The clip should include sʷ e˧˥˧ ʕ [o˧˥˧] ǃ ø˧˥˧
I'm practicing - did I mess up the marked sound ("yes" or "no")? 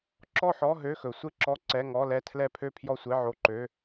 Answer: no